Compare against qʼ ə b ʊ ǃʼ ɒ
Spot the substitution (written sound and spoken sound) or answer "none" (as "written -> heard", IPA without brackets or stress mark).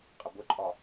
none